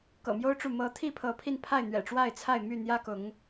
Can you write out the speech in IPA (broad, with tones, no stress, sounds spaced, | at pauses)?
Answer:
k ɤ̰˨˩ m j o˦ ʊ̯ ʈ͡ʂ u˨ m ɤ˨˦ t̪ʰ i˥˨ pʰ ɤ˨˦ pʰ i˧ n pʰ a˥˨ ɪ̯ n̪ ɥ ɛ̰˨˩ ʈ͡ʂ w a˥˨ ɪ̯ t͡sʰ a˥˨ ɪ̯ m y˥˨ n̪ j ä˦ k ʊ˨˦ ŋ